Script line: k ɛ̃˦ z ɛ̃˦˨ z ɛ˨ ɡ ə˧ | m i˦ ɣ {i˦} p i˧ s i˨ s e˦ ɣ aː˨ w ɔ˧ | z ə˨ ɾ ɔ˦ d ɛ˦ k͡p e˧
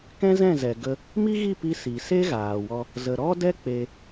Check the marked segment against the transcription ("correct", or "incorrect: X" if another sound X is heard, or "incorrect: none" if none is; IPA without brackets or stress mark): incorrect: i˦˨